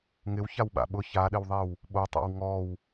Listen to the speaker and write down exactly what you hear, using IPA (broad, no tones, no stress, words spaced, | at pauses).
ŋɪwçaw ɓa̰ɓʊ çaɗɪwðˤew | ɓotˤa̰w ŋɔw